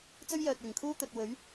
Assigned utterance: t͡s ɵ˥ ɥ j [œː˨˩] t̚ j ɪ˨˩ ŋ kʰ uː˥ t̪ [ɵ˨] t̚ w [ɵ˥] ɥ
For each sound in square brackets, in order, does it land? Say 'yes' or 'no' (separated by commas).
no, yes, no